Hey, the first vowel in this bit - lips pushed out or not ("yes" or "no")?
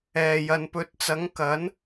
no